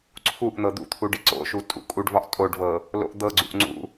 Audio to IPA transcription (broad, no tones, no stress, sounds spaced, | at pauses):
ǀʰ u ʔ n̪ ɤ d̪ ṵ t̪ʰ u ɖ i ǀ o̰ ʃ u tʼ ṵ kʼ u ɖ v ɒ ʔ tʼ o ɖ v ɤ | l o̰ ʔ d̪ ɤ ɡ͡ǀ ṵ ʔ ŋ͡ǀ ṵ